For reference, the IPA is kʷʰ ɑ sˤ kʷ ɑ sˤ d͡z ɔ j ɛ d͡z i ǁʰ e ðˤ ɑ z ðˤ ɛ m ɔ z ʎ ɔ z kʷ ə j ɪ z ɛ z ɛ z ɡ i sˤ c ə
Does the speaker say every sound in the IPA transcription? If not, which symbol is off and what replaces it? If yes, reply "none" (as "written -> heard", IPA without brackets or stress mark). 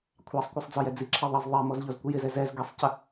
none